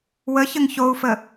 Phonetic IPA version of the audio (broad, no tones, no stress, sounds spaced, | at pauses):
w ə ç ə ŋ ç o u̯ f ə